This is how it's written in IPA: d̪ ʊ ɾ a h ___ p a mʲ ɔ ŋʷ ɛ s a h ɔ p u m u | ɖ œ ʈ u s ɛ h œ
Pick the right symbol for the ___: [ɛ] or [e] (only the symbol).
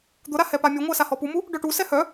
ɛ